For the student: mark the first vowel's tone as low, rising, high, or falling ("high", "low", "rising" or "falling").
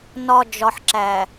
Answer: low